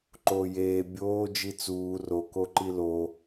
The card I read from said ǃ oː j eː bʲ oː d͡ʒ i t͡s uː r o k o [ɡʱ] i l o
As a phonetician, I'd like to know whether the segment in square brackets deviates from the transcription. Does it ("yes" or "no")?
yes